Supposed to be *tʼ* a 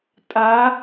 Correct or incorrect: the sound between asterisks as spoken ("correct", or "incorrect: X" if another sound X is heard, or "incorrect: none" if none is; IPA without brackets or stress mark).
correct